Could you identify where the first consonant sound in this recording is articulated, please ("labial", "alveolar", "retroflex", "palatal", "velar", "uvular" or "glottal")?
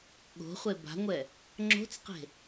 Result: velar